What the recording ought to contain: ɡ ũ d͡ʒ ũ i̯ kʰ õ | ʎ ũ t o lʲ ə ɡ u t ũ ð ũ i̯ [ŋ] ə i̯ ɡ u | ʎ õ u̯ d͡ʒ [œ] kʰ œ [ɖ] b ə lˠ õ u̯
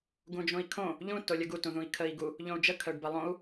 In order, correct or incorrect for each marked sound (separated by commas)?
incorrect, incorrect, correct